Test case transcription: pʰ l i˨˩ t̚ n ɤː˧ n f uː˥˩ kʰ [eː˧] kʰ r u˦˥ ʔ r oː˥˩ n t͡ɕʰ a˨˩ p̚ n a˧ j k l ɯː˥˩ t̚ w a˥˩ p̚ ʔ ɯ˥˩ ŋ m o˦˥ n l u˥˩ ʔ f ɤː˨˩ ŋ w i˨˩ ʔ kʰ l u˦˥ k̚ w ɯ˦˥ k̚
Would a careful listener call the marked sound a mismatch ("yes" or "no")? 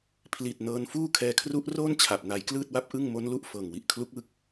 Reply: yes